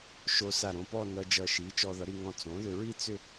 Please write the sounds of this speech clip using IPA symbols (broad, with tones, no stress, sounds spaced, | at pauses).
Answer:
ʃ o˧ s a˧˩ ɾ õ˧ p ɔ˥˧ n ʌ˧ d͡ʒ ʌ˧˩ ʃ i˩˥ t͡ʃ ɔ˧ ð ʌ˩˥ ɾ i˧ ŋ ɔ̃˧ t͡s õ˩˥ ð ʏ˧ ɹ i˥˧ t͡s ʏ˥˧